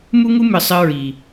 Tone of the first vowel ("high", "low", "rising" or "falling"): high